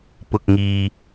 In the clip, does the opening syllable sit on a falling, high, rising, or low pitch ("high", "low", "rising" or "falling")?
low